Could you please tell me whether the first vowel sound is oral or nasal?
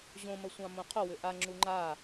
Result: nasal